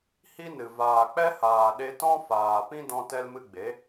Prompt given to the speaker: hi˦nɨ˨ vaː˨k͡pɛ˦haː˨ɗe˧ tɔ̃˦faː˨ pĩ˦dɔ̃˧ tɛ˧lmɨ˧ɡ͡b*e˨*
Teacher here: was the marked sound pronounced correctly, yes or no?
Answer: no